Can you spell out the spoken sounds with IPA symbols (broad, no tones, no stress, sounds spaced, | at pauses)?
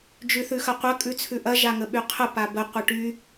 d͡ʒ ʉ θ ʉ x ɐ qʷ ɐ kʼ ʉ t͡sʰ ʉ ʔ ɐ ʒ a ŋ ə ɓ y qʰ ə p a b ə qʷ ɐ ʈ y